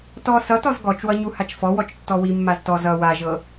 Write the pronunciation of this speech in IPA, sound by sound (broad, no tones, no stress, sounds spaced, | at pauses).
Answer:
t ɔ s ʌ t ɔ z ɡ ɔ t͡ʃ w ʌ ɲ u h a t͡ʃ f ɔ w ɔ t͡ʃ tː ɔ w i mː a z t ɔ z ʌ w a ʒ ɤ